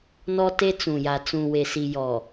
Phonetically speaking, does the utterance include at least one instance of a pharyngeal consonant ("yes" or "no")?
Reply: no